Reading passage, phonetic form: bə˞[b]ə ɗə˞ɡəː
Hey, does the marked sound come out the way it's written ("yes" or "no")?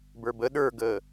yes